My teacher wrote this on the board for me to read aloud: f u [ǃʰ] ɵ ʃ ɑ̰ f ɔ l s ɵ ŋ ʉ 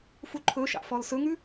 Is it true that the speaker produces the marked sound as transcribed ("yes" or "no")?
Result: yes